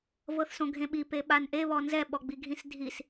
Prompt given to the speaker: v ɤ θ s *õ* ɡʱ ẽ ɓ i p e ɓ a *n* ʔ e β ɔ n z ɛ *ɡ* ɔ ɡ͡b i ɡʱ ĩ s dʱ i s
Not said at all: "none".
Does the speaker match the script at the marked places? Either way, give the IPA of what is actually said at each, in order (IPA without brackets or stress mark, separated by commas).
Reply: õ, n, ɓ